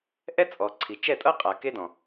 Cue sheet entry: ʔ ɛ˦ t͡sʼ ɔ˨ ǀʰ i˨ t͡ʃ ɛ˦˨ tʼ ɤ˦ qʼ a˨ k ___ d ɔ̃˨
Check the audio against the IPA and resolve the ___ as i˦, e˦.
e˦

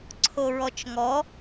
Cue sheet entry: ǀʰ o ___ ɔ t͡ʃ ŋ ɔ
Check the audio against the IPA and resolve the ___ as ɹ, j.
ɹ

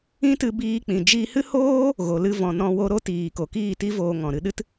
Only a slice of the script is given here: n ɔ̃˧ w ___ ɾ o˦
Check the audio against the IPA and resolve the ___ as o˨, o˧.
o˧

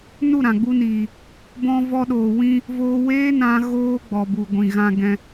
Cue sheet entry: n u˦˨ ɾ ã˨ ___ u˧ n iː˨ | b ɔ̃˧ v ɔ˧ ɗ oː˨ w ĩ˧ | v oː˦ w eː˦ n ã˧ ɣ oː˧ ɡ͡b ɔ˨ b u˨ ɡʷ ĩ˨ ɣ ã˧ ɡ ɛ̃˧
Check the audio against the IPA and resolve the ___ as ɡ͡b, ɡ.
ɡ͡b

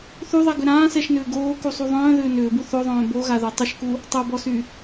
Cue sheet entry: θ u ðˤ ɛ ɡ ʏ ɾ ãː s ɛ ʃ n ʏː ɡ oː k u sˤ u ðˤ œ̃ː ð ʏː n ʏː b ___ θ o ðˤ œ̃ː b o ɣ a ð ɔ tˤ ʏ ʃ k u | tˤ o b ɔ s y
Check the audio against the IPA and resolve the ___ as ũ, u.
u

